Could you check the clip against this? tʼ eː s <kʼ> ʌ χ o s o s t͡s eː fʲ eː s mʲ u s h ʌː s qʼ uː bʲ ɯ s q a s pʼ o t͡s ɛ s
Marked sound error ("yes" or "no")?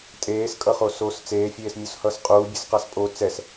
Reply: no